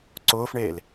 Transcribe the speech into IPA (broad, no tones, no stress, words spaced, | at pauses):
ǀʊːfɳeːl